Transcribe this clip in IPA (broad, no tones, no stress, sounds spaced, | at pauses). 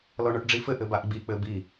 l ɔ ɳ ɔ ʈ ɖ͡ʐ i f ɘ ʔ ɘ b a ʔ ɡ͡b i k͡p ɘ b i